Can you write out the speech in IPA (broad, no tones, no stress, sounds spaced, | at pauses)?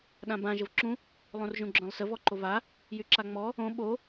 ɗ ã b ã ʒ ə v ǁ ũ | lˠ õ r ʒ ũ ɡ͡ǁ œ̃ lˠ s ə v ɔ ǃ o v a | j y ǁ a ŋ͡m ɔ | õ ɓ o